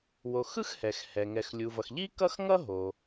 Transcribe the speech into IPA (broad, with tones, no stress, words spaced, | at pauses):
wo˩xɯ˥x hɛ˩xhɛ˩ ŋɛ˩xlʲu˩vʌ˩x ʎi˥kʌ˥x ŋʌ˥ɦo˩